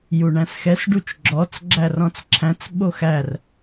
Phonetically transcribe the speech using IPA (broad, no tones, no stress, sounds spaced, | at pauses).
j u ɳ æ̃ s x ɛ s ɖ u t͡ʃ ɡ͡ǁ ɔ t͡s ɡ͡ǁ æ r ɔ̃ t͡s ǁʰ æ̃ t͡s ɓ o x æ r